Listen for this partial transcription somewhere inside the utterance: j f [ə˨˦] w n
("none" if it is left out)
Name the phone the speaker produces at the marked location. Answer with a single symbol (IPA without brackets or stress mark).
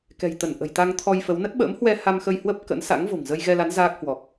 ə˨˦